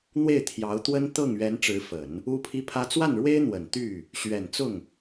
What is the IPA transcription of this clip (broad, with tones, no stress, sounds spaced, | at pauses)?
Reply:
n̪ w e˥˩ ɪ̯ t̪ʰ j ɑ˧˥ ʊ̯ t̪ w ə˥ n t̪ ɤ˥˩ ŋ ɥ ɛ˧˥ n ʈ͡ʂ ɻ̩˧˥ f ə˨˩˦ n | u˥ pʰ i˥ pʰ ä˥ t͡s w a˥˩ n ɻ w e˥ ɪ̯ n̪ w ə˨˩ n t̪ y˥˩ | ɕ ɥ ɛ˨˩ n t͡s ʊ˥˩ ŋ